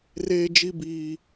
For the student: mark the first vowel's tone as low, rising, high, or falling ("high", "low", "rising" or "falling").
high